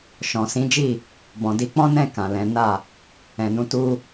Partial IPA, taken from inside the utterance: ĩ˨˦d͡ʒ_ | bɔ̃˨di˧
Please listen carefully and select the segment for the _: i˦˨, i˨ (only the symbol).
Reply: i˦˨